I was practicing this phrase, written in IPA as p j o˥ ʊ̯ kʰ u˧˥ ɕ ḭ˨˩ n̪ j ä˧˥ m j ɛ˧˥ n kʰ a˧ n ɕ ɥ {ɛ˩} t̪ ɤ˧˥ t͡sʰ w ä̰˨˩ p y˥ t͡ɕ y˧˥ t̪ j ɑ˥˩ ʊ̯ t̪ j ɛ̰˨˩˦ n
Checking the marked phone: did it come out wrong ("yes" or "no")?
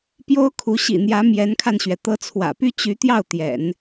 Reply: no